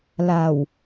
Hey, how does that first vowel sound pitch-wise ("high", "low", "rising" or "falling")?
low